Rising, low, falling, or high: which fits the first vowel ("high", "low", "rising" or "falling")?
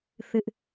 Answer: high